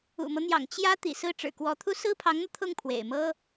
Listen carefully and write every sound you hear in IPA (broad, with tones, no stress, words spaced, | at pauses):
ṵ˨˩mɤ˦n̪jɑ̰˨˩ŋ t͡ɕjä˥ t̪ḭ˨˩sɹ̩˥˩ ʈ͡ʂɻ̩˨˩kwɔ˧˥t̪ʰu˥˩ sɹ̩˥pʰɑ˧˥ŋn̪ɤ˧ t̪ʰʊ˥˩ŋpʰwḛ˨˩ɪ̯mɤ˥